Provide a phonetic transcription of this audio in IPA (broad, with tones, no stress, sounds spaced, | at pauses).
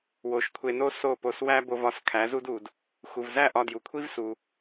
w o˩˥ ʃ kʷʰ e˧ n o˥ s o˥˩ p o˧ s w æ˥ b o˧ v ɒ˧ s kʰ æ˩˥ z u˥ d u˩ d | x u˩ v z æ˥˩ ʔ ɒ˧ d j u˩ kʷʰ i˥ v s u˩